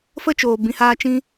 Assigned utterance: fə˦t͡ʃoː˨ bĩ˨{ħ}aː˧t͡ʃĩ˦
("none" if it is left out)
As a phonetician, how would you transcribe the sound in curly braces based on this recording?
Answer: h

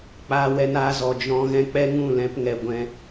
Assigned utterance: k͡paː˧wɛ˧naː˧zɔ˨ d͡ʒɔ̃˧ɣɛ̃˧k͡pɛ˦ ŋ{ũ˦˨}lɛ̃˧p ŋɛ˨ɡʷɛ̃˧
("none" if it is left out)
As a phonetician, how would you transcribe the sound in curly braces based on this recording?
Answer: ũ˦˨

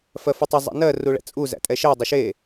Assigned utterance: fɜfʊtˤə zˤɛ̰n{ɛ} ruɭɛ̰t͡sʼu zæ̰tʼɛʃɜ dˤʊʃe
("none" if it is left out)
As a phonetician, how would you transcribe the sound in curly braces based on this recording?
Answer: ɜ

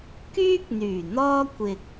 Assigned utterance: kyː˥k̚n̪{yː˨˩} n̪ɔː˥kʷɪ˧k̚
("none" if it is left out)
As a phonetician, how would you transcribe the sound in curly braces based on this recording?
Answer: yː˨˩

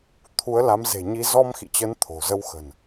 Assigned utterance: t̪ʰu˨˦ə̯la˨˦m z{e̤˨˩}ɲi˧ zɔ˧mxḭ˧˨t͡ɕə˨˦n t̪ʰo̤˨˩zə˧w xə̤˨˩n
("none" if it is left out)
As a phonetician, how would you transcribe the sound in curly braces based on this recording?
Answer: e̤˨˩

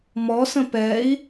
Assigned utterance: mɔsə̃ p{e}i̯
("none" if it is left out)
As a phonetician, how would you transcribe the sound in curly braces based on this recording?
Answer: ɛ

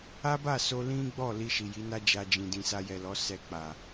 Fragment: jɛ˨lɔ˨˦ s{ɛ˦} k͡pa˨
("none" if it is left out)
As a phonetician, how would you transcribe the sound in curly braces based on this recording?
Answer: ɛ˧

